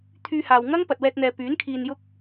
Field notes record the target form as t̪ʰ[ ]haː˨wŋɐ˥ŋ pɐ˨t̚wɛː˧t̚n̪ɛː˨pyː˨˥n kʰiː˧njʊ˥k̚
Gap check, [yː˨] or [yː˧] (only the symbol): yː˧